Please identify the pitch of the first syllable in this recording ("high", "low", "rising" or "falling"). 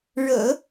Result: low